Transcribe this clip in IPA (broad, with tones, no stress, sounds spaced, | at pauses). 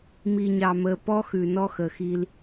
m i˨ ɲ ɑ˨ m ə˨ p ɔ˦ x ʉ˨ n ɔ˦ x ə˨ x i˦ l